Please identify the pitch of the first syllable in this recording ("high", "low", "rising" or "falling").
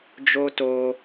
high